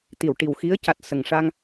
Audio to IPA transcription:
t̪ i˨˩˨ w ʈ i˨˩ w x i˧˥ ə̯ c a˨˩ t̚ s ə˨˩ ŋ ʂ a˧ ŋ

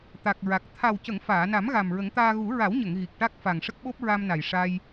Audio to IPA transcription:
t̪ a˨˩ k̚ ɹ a˨˩ k̚ t̪ʰ a˨˩ w c ə˨˩˨ ŋ f aː˨˩˨ n a˨˩˦ m ɣ a˨˩ m ɹ ə˨˩˦ ŋ t̪ aː˧ ɣ u˨˩˦ ɹ a˨˩˦ w ɲ ə˨˩˨ ŋ ɣ i˨˩ k̚ ʈ a˦˥ k̚ f a˨˩ ŋ ʂ ə˦˥ k̚ ɓ o˦˥ p̚ ɹ a˧ m n a˨˩ j ʂ a˧ j

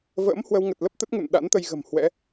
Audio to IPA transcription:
v ə̰ː˧˥ m h w ə˧ w ŋ ə˨˩ t̚ l ə˦˥ p̚ t̪ ə˦˥ t̚ ŋ ṵ˧˨ n ɗ a̰˧˥ n t̪ ə˧ j ɣ ə̤˨˩ m h w ɛ̰˧˥

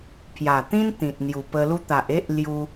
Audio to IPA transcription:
pʰ j a˨˩ t̪ ĩ˦ n t̪ ĩ˨ t̚ n̪ j u˨˩ p ə˧ l u˧ t̪ a˨ ʔ e˦ ʔ l j u˧

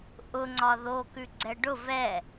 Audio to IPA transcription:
ʔ ʊ ŋ͡ǀ ɒ ð o k ʉ ɡ͡ǀ ɛ ɖ ʊ v ɛ

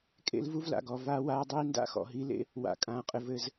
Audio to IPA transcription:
kʼ ḛ˦ l v u˦ v l a̰˨ ɡ ɔ˨ v aː˦ w aː˦ dˤ iː˦ n d a̰˦ x ɔ̰˨ ɦ i˨˦ l ḛ˦ | w a̰˨ kʼ ãː˨ qʼ ɘ˨ v ɘ˦ z

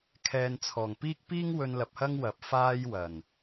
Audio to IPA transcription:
kʰ ɛː˨ n t͡sʰ ɔː˨˩ ŋ p iː˥ k̚ p iː˥ ŋ w ɵ˧ n l ɐ˨ p̚ h ɐ˥ ŋ w ɐ˨˥ p̚ f aː˥ j w ɐ˨˩ n

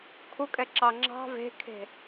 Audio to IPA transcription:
kʰ u kʼ ɛ ǁ ɑ ŋ͡ǁ ɑ̤ v e̤ kʰ e̤

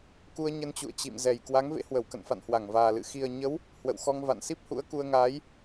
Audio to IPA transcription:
k u˧ ə̯ ɲ ə˧ n t͡ɕ ṵ˧˨ ə̯ t͡ɕ ḭ˧˨ m z ɛ˨˩ j k w a˨˦ ŋ v ḛ˧˥ h w ə˧˩ w k ə̰˧˨ n f a̰˧˨ n h w a˧˩ ŋ v aː˨˩ l ɨ̰˧˨ x i˨˩ ə̯ ɲ ə˨˦ w | h w ə̰˧˨ w x ɔ˧ ŋ v a̰˧˨ n s i˦˥ p̚ h ṵ˧˥ ə̯ k u˧ ə̯ ŋ aː˨˦ j

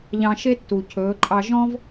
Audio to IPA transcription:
ʎ ɑ̃˧ ʃ e˦ tː u˨ cʰ ɵː˨˦ ǃʼ ɑ˧ ʒ ɔ̃˦ v

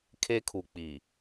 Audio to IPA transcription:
kʰ e˦ kʰ u˨ k͡p i˨

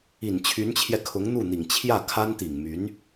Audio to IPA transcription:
i˨˩ n t͡ɕʰ y˧˥ n t͡ɕʰ j ɛ˧ kʰ ʊ˧˥ ŋ n̪ u˥˩ n̪ i˨˩ ŋ t͡ɕʰ j ä˥˩ kʰ a˥ n t̪ i˨˩ ŋ m y˧˥ n

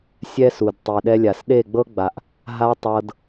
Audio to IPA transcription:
sʲ ɛ˦ s u˨ d tˤ i˨ ɗ ɛ˦ lʲ a˨ s ɗ e˦˨ ɡ͡b ɤ˦ ɡ͡b a˨ ʔ | ɦ a˦ tˤ ɤ˧ d

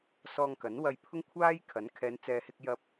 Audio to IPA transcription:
s ɔː˧ ŋ k ɐ˨˥ n w ɐ˧ j pʰ ʊ˥ ŋ kʷʰ aː˥ j kʰ ɐ˨˥ n kʰ ɛː˨˧ n t͡s ɛː˨ h ɪ˧ k̚ j ɐ˧ p̚

